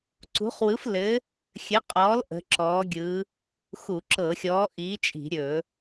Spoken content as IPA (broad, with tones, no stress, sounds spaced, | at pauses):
ǀ ṳ˨˥ χ w ɯ˨˥ f l ɘ˨˥ | xʲ ɘ˨˥ qʼ ɔː˨˥ l ʔ ə̤˨˥ ǁ ɔː˨˥ ɡʲ ɯ˨˥ | x u˧˩˧ ǁ ɤ˧˩˧ xʲ ɔː˨˥ ʔ iː˨˥ t͡ʃʼ i̤˧˩˧ ɾʲ ɵ˧˩˧